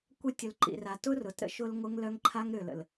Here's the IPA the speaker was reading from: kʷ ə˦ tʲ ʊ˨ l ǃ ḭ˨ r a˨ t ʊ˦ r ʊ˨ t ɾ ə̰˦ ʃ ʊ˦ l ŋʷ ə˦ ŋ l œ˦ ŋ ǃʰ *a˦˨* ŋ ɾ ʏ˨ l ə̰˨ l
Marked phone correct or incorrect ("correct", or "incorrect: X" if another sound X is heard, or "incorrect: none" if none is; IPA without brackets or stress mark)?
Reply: incorrect: a˦